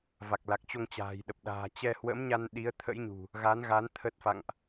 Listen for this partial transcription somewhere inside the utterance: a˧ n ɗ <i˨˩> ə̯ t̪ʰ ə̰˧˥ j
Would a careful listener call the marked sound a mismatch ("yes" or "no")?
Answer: yes